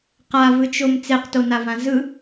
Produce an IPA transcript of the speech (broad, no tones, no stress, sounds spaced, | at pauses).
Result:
q a v ɯ t͡ʃ o m t͡s e q t o n a v ã z ɯ